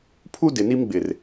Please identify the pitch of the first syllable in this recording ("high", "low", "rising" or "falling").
high